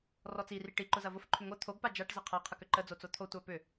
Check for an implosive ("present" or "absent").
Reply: absent